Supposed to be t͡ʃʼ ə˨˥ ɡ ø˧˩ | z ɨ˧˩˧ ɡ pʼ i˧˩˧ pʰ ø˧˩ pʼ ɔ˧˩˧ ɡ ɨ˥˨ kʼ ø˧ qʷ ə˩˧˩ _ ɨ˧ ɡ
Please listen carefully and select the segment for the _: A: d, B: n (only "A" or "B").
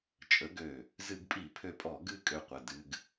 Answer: A